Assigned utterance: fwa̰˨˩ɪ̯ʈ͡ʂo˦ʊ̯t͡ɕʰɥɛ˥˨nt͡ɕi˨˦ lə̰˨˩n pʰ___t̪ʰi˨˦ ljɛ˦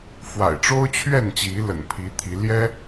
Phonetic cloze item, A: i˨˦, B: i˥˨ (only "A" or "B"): A